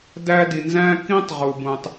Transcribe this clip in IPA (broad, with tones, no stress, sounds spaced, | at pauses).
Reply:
d æ˥ d i˧ n z æ̃˥ k ĩ˥ tˤ ʁ u˧ b ũ˧ tˤ